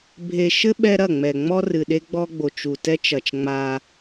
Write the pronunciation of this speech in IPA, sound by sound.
bʱ e˨ ʃ ɘ˦ ɓ ɛ˦ ɾ ɐ˦˨ ŋ͡m ɛ˨ ŋ͡m ɔ˦ r ɨ˨ ɗ e˦ ɡ͡b ɔ˦ ɡ͡b o˨ t͡ʃ u˨ t ɛ˦ t͡ʃ ɐ˨ t͡ʃ ŋ͡m a˦

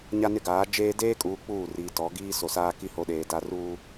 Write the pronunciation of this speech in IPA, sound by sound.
ɲ a˦ n ɪ˦ ɡ aː˨˦ d͡ʒ eː˦ d eː˦ kʼ uː˨ k͡p uː˦˨ r iː˨ t ɔ˨˦ ɡ iː˦ s o˨ s aː˦ k i˦ h o˨˦ ɗ eː˨ d a˦ r uː˦

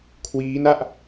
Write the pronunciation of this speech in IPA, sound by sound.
kʰ w iː˦˥ n a˥˩ ʔ

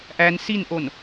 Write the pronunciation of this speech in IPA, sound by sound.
ʔ æ n s i n ʔ o n

